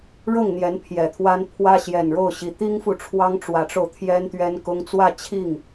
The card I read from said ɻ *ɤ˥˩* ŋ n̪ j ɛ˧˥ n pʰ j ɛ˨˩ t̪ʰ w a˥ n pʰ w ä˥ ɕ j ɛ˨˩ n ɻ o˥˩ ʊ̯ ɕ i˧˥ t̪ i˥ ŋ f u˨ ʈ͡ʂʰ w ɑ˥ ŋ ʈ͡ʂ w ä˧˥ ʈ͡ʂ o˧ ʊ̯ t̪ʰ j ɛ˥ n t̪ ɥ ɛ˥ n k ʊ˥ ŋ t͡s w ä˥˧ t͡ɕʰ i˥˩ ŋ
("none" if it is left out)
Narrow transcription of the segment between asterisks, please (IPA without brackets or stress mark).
ɤ˥˩